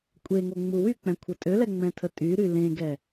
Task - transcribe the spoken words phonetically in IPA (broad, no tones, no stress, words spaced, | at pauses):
kʷʼeŋo ŋ͡muwyk͡pɛ̃ kʷʰətʼølɛ ŋ͡mɛ̃tʰətʼyɾy lẽɡɛ